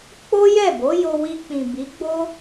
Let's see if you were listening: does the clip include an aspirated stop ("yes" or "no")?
no